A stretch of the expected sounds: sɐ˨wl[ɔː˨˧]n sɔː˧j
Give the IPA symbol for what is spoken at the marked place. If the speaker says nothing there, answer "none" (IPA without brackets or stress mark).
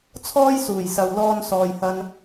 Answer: ɔː˧